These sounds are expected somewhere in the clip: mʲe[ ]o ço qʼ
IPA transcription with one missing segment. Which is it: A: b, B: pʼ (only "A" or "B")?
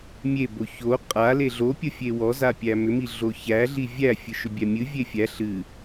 A